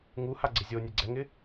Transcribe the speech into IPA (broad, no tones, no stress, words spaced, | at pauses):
ŋuhaɡ͡ǀɪ zʲonʲe ɡ͡ǀɛŋɪ